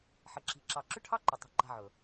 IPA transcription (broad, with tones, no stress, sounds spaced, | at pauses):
ħ ə˨ ǁ i̤˨ ǁ ɑ˨ ǁ ʏ˦ ʈʰ ɑ˦ ǃ ʏ˨ tˤ ə̤˦˨ ǃ a̤˦ ʕ ɵ˨